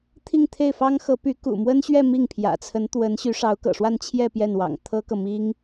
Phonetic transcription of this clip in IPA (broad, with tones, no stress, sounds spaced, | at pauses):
t̪ʰ i˥˧ ŋ t̪ʰ e˥˩ ɪ̯ f ɑ˥ ŋ x ɤ˧˥ p y˧˥ k ṵ˨˩ m w ə˥ n ɕ ɥ ɛ˥˧ m i˥˩ ŋ pʰ j ä̰˨˩ t͡sʰ ə˧˥ n t̪ w ə˧˥ n ɕ y˧˥ ʂ ɑ˧˥ ʊ̯ k ɤ̰˨˩ ʂ w a˥˧ n t͡ɕʰ j ɛ˥˧ p j ɛ˥˩ n w ɑ̰˨˩ ŋ t̪ʰ ɤ˥ k ɤ˨ m i˥ ŋ